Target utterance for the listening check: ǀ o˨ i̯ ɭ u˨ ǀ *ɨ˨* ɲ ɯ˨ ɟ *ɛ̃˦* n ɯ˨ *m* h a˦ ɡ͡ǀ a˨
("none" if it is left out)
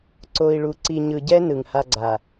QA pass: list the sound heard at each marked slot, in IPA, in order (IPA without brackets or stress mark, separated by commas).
i˨, ɛ˦, ŋ